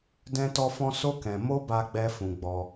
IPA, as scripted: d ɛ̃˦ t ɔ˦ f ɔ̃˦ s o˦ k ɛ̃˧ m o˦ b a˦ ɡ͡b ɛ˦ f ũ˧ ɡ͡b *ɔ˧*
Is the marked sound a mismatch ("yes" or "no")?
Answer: no